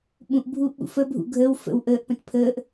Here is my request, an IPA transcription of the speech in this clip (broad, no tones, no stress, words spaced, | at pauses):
ɓũʔbʱuːʔɓṵ fəbʱṵ ɡʱəːw fə̰w ʔəːʔpə̃t pʰəːʔ